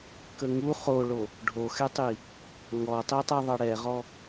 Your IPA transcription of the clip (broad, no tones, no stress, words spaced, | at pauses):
kəŋu χoɭo | ɖʱoxɛtˤi | ŋɔtˤi tˤɛðˤʌɽɛʁɔ